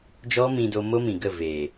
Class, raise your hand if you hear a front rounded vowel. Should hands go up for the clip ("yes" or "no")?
no